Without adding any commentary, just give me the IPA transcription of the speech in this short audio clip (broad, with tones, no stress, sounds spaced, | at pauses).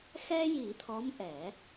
x ɛ˧ j i˨˩˦ t̪ʰ ɔ˧˥ m ʔ ɛ˨˩˦